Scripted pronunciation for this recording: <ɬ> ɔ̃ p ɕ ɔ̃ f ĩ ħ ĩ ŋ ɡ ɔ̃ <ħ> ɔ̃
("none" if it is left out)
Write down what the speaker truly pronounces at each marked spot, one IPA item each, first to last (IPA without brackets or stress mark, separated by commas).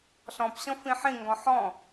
ɬ, ħ